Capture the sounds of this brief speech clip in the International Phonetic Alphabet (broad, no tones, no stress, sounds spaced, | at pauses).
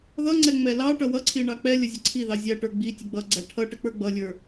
ð ʌ ŋ͡ǀ ɛ ŋ͡m ɛ l ɑ ʈ ʌ w ʌ ǀʰ i ɳ ɑ k͡p ɛ lʲ ə zʲ ʌ ǀʰ i ð ɑ zʲ æ ʈ ə˞ ɡ͡b i tʲ ə ɡ͡b ʌ ɡ͡ǀ æ ʈʰ ʌ ʈ ə k͡p ə˞ ɡ͡b ʌ lʲ ə˞